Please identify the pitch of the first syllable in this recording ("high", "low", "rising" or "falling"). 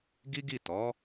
high